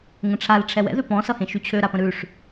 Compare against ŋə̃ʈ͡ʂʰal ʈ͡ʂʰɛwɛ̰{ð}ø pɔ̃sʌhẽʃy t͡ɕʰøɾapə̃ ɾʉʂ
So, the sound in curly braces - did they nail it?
yes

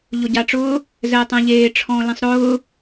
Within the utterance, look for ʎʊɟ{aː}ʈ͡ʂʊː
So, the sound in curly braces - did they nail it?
no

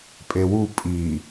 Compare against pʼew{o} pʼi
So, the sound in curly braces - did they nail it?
no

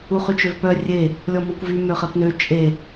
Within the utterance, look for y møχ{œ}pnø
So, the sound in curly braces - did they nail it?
no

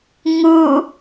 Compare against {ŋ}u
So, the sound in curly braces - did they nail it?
yes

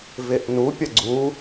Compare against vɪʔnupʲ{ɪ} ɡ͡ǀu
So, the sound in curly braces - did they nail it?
no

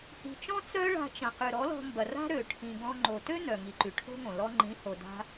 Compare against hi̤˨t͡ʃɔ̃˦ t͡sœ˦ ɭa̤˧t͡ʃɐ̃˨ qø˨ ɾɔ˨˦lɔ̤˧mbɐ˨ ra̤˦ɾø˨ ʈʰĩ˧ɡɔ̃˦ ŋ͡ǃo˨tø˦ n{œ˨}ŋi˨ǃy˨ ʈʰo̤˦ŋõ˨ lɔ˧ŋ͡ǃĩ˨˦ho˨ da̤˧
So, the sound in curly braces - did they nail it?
yes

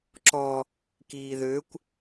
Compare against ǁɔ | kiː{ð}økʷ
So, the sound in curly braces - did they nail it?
yes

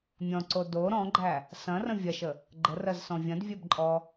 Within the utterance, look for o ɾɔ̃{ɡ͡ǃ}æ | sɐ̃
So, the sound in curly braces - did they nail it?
yes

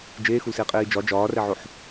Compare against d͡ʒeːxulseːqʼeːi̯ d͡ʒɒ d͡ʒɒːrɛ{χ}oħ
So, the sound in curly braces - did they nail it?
no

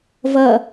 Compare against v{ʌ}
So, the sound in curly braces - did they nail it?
yes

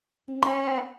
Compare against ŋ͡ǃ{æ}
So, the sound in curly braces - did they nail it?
yes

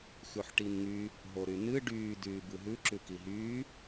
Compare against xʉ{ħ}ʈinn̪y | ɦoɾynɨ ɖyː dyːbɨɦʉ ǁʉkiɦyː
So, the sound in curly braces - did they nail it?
yes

